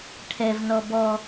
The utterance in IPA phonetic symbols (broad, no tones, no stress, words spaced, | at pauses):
ʈʰɛvnɔ bɔ